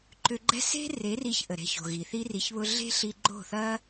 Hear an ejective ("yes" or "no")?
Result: no